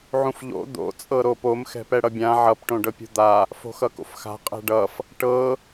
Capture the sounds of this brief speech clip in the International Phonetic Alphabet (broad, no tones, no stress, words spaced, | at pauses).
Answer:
ʕũfʎo̰ d̪o̰ t͡sʼɤɾopom xɛ̤pɛɽʌbʲã ʕʌp ʈõɖɤpʲṳd̪a | fo̤xʌko̰fxa̤ qʼɛ̤ɖʌf | ʈɤ